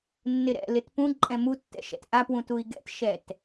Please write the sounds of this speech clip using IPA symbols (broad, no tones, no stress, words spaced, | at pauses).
nːɪɾɛ̰ lɪtpũ ǃʼɛ̃mutːɛ̰ʃɛ̰t ʔapwũtui̯ ɡɛ̰tʃɛt